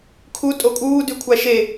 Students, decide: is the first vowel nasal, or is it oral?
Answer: oral